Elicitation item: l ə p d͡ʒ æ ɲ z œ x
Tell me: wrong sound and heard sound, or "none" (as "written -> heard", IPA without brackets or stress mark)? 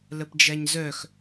none